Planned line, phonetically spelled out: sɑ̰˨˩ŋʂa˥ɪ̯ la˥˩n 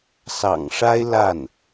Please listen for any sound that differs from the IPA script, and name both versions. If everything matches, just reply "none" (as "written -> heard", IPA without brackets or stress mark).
none